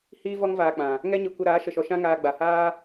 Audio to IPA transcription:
h iː˦ v ɔ˦ ŋ v aː˧ k͡p ã˨ | ŋ ɛ˦ ɲ ɨ˧ kʷ ə˧ ɾ aː˨˦ ʃ ə˧ ʃ ɔ˧ ʃ ã˦ ŋ aː˧ ɡ͡b a˨ h aː˦

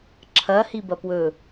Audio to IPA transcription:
ǁʰ ɐ h i b ɐ p w ɵ

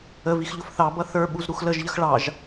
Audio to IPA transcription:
ə v i x ʎ ʊ f θ ɑ b ʌ θ ə˞ ɓ u z ɾ u x l ə ʒ ʎ ə x ɭ ɑ ʒ

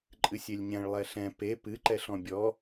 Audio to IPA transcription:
ǃʼ ɨ sʲ e lʲ ɲ ɛ̃ ɭ lˠ ɛ ɬ ɛ̃ p e p ɨ ǃ ɛ ɬ ɔ̃ bʲ ɔ

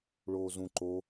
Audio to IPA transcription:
ɭ oː z ũ ǃ o

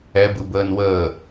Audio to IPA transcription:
ɛ b ɯ b əː n w əː

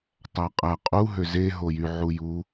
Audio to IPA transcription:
tˤ æ qʼ æ qʼ u ɦ ø z e ɦ o j y ʕ u j u

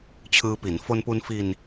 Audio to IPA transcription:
t͡ɕʰ ɯː˧ p i˩˦ n f o˧ n p u˧ n f i˧ n

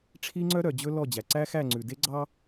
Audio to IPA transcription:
ʈ͡ʂʰ i˦ ŋ͡ǀ œ˦ ɾ œ˨ d͡ʑ ɵ˦ l ɔ˦˨ d͡ʑ æ˨ ǀ æ˦ x æ˦˨ ŋ͡ǀ ʉ˨ d e˦ ɡ͡ǀ ɑ˦

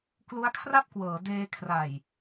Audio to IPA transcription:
k l u˦˥ a̯ kʰ r a˥˩ p̚ k w ɤː˩˦ d eː˧ kʰ r a˨˩ j

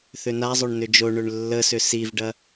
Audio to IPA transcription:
θ ʏ n a zˤ o ɳ n ʏ d͡ʒ o ɳ ø ɳ lː ə s ʏ s i v ɖ ɐ

